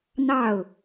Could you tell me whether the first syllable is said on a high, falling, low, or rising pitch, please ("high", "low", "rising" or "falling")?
falling